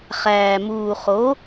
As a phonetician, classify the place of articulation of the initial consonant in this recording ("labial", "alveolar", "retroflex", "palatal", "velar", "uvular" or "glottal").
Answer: uvular